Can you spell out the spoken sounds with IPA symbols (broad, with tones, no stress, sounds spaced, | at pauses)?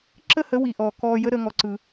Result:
ǁ ə˦ h ə˨˦ w i˨ ʔ ɔː˨ k ɔː˧ j ə˦ ɾ əː˦ ŋ ɔ˧ ǀ ɯ˧